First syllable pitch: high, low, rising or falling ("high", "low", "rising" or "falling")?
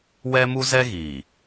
high